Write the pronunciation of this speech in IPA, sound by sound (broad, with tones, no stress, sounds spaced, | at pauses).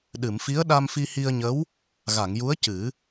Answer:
ɗ ɨ˨˩˨ m f i˧˥ ə̯ ɗ a˧ m f i˧ h i˧ ə̯ ɲ ə˧˥ w | ɣ a˨˩˨ ŋ j u˧˥ ə̯ c ɨ˨˩˦